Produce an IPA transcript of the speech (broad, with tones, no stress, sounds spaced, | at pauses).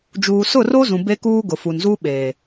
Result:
d͡ʒ uː˨ s ʊ˦˨ r o˦ z ũ˨ b e˦ k uː˦ ɡ ʊ˨ f u˨ n z u˦ ɓ eː˨